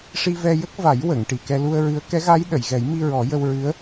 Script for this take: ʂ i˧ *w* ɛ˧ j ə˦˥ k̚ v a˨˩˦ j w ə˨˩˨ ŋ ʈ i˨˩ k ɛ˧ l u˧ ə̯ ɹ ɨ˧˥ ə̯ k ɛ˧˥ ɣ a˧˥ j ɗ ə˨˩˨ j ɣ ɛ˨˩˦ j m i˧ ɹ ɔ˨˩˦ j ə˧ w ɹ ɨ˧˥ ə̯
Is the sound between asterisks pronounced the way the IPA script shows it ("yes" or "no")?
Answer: no